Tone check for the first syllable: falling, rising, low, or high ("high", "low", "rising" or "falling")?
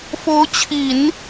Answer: rising